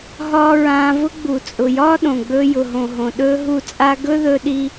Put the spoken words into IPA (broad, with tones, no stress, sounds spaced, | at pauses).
ɦ ɒː˦ ɹ ãː˧ v ʊ˦ ɡ͡b u˨ t͡sʼ ʊ˨ j ɒː˦ ɗ õ˨ ɡ͡b ɵː˧ j ʊ˨ ɦ õ˨ ɦ õ˨ ɗ ɵː˦ ɦ u˦˨ t͡sʼ a˦ ɡ ɵ˦ ð ɵ˧ ɗ i˧